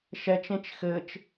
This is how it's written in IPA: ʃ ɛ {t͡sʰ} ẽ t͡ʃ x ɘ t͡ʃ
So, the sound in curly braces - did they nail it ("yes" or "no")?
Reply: no